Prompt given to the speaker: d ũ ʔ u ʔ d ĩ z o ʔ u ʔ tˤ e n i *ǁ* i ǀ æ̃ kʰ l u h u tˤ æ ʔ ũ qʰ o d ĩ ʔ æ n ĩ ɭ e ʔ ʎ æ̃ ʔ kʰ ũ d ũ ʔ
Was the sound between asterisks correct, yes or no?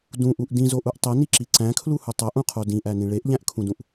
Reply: yes